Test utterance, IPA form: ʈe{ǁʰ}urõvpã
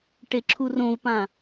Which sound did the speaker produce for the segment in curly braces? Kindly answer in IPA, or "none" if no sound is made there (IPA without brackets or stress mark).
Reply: ǁʰ